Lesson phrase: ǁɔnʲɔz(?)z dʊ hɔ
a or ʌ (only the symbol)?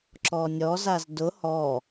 a